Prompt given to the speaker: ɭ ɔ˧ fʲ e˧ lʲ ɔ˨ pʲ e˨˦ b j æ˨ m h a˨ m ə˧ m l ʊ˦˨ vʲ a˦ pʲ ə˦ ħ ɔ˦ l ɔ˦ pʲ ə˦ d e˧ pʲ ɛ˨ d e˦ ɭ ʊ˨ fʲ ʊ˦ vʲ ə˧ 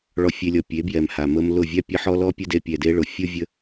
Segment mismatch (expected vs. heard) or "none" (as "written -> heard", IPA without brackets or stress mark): æ˨ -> ɛ˨